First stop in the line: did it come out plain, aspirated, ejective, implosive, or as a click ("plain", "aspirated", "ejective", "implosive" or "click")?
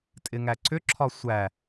ejective